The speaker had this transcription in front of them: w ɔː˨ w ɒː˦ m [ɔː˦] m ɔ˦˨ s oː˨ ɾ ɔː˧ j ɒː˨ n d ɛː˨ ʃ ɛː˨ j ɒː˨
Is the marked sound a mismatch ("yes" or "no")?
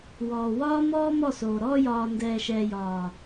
no